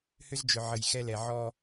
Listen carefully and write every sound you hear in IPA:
h ʏ˦ z d͡ʒ ʏ˨ ʕ ə˨ j x ɛ˦ l ɛ˨ ʕ ɔ˦

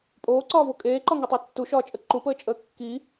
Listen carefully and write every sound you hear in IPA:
pʼ oː ǀ ɒː v o kʼ eː ǃ ɒ ŋ u tˤ o tː u ʃ ɒː t͡ʃʼ ə ǃ u p əː t͡ʃʼ əː kː i

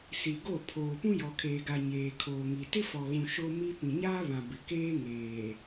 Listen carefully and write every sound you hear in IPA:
s i˨ ɡ o˦˨ pʰ oː˨ p ũ˦ j ɔ˨ kʰ eː˨ ɡ a˨ ɲ eː˨ kʰ oː˨ ŋ i˨ t ɪ˦ f ɔ˨ ɣ ũ˨ ʃ o˦ m i˦ p ĩ˨ ɲ aː˦ β ã˨ b ɪ˨ k eː˦ ŋ eː˨

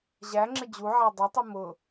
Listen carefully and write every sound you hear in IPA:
ʑ æ ŋ͡ǁ ɪ d͡ʑ u ʕ æ dˤ ʊ tˤ u m ʊ

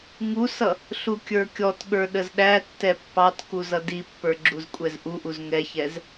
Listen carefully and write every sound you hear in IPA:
ŋ u s ʌ | ɬ u kʲ ə˞ kʲ ɔ t ɠ ə˞ ɗ ə z ɗ æ tː ɛ pː ɑ t k u z ʌ d i pː ə˞ ɡ͡ǁ u z kʷʼ ɛ z ʔ u ʔ u z ŋ ɛ ç ɛ z

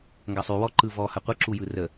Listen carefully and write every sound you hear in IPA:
ŋ ɡ ɐ sˤ y w ɔ ǃ ɯ v ɔ h ɐ qʷ ɯ ǁ u j ɯ r ə

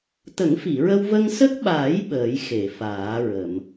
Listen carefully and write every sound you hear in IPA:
t̪ ə˨˩˦ ŋ f i˨˩˨ ɹ ə˧ w v ə˧ ŋ s ə˦˥ k̚ ɓ aː˨˩˦ j ɓ əː˨˩˦ j x e˨˩˨ f aː˨˩˦ ɹ ə˨˩˨ m

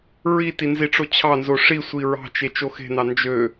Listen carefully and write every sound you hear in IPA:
ɹ i t i n z i ʈ͡ʂ o t͡ɕʰ ɑ n z o ʂ i sʷ i ɹ ɑ̤ t͡ʃ e t͡ʃ o x e̤ n ɑ n d͡ʒ ø

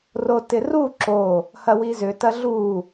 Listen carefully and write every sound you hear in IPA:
r o t ɪ r u ǁ o | h ɐ w i z ʏ t ɐ ɮ u

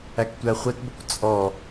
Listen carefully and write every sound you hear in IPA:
æ k tʷ æ χʷ ɛ t b ə kʷ t͡sʼ ɔ

